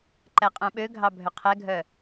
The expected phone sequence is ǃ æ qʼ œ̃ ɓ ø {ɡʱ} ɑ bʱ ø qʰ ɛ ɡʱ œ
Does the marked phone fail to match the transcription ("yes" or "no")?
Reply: no